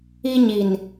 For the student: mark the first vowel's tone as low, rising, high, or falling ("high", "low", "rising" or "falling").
high